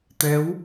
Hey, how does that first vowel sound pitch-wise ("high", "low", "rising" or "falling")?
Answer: rising